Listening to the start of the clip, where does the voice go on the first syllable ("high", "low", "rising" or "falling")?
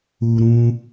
low